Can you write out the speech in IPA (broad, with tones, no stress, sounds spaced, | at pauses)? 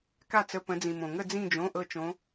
k a˥˧ t͡s ə˧˥˧ p ə̃˨˦ d͡z ĩ˨ m õ˨ ŋ ə˥˧ d͡z ĩ˥˧ d͡ʒ õ˧˥˧ ʔ ɤ˥˧ t͡ʃ õ˦˥